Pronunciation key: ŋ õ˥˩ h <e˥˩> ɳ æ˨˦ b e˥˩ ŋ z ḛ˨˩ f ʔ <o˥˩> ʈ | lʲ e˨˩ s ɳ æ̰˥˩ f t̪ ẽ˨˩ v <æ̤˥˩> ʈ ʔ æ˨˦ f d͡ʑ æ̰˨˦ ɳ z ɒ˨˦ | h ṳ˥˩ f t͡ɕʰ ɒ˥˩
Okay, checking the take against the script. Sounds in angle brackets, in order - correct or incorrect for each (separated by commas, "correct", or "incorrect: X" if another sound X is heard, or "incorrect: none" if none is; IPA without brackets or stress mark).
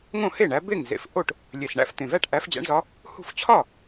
correct, correct, incorrect: æ˥˩